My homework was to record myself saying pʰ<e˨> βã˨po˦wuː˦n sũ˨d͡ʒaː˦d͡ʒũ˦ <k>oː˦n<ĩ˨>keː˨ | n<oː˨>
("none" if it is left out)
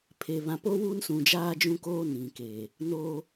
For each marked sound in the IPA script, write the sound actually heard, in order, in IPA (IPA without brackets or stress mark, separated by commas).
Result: e˨, k, ĩ˨, oː˦